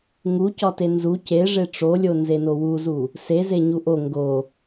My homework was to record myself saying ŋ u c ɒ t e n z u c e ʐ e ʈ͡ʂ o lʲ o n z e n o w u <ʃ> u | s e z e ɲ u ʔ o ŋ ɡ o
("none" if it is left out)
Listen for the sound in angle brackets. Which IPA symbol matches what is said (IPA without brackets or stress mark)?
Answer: z